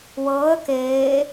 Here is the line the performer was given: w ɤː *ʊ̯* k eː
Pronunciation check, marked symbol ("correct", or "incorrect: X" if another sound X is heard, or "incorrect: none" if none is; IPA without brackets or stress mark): incorrect: ə̯